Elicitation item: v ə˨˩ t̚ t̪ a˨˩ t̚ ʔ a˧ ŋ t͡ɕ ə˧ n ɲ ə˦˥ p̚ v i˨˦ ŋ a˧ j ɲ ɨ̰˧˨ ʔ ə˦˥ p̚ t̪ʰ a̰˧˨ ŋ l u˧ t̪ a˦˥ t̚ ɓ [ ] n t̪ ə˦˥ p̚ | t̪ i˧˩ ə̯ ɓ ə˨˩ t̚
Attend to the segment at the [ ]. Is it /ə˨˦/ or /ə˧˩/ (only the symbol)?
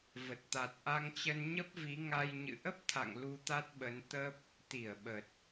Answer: ə˨˦